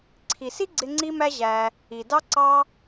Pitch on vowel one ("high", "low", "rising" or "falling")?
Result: low